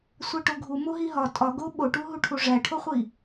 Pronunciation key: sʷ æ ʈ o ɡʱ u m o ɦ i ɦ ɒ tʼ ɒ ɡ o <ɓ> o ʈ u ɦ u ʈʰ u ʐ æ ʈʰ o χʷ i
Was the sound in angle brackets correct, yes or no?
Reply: yes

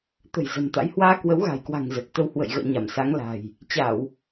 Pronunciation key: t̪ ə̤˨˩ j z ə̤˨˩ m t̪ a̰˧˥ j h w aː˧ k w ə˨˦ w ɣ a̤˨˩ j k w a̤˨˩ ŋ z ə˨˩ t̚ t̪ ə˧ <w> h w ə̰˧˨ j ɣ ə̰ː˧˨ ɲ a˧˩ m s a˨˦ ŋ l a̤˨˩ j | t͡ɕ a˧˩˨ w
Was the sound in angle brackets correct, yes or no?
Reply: yes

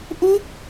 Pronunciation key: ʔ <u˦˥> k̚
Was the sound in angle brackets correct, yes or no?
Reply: yes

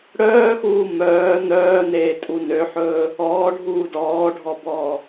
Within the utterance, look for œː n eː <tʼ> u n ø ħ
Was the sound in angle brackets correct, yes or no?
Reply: yes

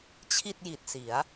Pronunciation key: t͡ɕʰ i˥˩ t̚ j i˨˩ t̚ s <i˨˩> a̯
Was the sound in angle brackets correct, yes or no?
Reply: no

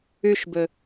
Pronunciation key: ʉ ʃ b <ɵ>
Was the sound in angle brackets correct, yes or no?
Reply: yes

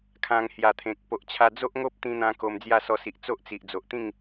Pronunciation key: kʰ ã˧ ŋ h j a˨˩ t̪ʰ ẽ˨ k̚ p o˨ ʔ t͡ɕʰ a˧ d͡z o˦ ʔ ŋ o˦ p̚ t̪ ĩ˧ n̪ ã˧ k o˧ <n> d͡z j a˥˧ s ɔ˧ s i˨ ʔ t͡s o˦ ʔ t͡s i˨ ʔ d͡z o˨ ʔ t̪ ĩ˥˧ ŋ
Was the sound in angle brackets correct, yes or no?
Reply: no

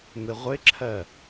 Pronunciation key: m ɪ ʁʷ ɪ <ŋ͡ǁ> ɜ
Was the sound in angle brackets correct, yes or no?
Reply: no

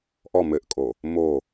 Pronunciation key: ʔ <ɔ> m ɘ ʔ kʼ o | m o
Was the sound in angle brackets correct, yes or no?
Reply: yes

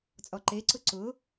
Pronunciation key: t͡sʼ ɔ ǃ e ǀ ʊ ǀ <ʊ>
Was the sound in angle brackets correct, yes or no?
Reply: yes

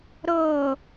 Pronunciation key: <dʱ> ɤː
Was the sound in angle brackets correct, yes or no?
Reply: no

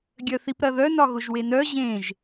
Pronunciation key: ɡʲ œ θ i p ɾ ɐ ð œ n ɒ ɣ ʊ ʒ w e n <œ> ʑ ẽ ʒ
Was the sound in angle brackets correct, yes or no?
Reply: yes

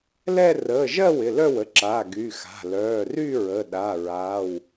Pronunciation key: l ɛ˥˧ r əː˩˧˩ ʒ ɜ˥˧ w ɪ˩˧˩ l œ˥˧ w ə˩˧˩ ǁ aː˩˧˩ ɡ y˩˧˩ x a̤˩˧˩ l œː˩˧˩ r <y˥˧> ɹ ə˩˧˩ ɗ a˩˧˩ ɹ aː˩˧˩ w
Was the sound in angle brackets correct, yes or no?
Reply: yes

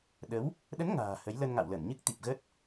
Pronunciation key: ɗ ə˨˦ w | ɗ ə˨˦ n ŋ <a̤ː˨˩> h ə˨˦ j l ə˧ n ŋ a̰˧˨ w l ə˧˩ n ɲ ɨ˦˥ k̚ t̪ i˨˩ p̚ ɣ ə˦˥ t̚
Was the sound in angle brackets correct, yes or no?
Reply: yes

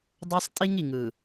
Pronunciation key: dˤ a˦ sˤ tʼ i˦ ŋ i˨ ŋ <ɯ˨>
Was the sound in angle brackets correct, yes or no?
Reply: yes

